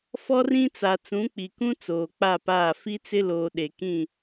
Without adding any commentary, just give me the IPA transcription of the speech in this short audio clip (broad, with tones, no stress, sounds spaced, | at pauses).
f ɔ˦ r ĩ˦ t͡s a˨ t͡s ũ˨˦ k͡p i˨ k ũ˦ t͡s oː˨ k͡p a˦˨ p aː˦˨ f i˦ t͡s ɪ˦ l oː˨ ɗ e˨ k ĩ˦˨